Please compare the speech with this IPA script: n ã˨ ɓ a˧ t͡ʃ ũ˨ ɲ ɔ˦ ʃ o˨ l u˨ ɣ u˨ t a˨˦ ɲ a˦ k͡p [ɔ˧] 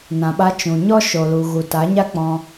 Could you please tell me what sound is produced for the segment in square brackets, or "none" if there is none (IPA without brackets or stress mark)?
ɔ̃˧